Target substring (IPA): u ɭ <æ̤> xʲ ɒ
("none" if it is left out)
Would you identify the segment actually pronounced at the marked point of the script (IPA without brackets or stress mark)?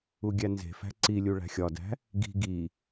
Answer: æ̤